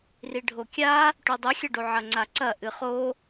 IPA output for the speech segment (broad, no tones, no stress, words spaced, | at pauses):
riɖʱokʲa | ʈʉdˤɨxʲɐɖo ʕɐŋ͡ǀaǀɐ ʔɨχo